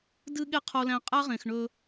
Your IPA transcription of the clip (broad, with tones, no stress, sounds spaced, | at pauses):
d ɨ˥ ɠ e˥ qʰ o˧ l æ̃˧ qʼ a˥ ʁ ẽ˩ x ɳ ɵ˧